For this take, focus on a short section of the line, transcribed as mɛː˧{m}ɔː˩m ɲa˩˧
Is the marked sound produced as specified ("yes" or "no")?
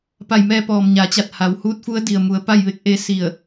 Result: no